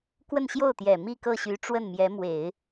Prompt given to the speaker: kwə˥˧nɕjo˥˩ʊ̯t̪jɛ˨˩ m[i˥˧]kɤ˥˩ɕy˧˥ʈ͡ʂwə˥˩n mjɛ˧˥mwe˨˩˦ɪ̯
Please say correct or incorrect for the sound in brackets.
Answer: correct